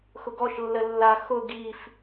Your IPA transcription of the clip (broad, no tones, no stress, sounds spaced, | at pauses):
x ʊ ɡ ɔ ʃ lː ə lː a x ʊ ɡ i f